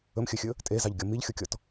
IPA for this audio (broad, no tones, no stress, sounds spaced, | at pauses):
ɵ m xʲ ɵ xʲ ɵ | tʼ e z ɑ ʎ ɡʲ ɔ m i ʎ xʲ o kʲ ɔ t